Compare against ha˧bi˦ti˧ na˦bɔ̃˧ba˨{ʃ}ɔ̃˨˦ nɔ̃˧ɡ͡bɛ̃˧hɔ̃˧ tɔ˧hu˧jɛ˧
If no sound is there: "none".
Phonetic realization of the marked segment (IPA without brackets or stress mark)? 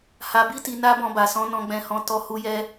s